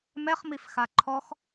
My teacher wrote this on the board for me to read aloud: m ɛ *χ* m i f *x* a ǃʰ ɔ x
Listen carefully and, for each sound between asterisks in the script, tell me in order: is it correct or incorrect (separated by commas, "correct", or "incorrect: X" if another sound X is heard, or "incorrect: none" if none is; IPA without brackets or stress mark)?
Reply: correct, correct